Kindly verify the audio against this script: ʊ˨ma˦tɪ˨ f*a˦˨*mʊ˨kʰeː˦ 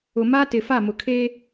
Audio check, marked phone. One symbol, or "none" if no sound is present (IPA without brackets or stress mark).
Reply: a˦˨